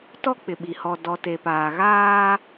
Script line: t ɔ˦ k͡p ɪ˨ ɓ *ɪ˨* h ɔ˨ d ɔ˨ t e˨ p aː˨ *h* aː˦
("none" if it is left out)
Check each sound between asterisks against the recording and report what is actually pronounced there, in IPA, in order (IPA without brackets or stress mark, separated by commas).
i˨, ɣ